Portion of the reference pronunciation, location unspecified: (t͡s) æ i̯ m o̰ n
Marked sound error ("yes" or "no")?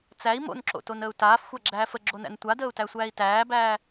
no